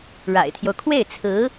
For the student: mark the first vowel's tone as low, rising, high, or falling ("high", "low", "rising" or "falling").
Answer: low